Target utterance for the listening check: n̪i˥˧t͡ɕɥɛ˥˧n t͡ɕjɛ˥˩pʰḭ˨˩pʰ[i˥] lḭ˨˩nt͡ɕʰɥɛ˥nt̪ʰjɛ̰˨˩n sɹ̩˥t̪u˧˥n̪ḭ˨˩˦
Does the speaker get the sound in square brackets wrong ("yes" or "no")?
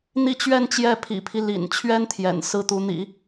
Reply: yes